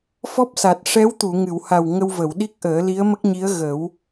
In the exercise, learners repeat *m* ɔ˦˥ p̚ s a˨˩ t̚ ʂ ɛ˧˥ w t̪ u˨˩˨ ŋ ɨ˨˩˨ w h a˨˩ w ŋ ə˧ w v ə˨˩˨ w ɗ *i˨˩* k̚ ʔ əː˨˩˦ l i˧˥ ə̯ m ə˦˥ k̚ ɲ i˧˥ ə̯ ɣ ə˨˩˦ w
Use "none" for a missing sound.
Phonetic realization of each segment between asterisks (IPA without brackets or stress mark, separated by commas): f, i˦˥